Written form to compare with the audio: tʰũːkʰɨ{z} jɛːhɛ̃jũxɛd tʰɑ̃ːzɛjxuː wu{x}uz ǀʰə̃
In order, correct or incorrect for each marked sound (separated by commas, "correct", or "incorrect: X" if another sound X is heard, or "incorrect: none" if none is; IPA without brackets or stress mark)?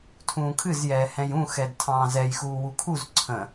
correct, incorrect: kʰ